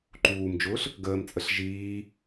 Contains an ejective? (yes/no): yes